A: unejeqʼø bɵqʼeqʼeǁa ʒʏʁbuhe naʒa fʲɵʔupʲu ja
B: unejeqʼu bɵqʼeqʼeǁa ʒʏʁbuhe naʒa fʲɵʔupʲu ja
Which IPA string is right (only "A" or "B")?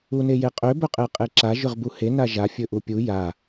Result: A